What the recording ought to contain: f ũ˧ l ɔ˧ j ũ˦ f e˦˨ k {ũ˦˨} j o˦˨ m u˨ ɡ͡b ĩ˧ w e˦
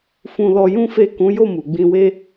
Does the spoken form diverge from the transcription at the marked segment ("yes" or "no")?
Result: yes